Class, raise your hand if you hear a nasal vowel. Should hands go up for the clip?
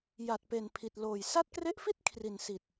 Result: no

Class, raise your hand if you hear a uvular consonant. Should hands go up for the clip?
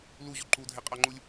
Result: yes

